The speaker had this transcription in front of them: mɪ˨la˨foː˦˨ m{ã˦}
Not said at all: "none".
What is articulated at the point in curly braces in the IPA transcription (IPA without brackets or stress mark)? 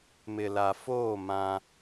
ã˦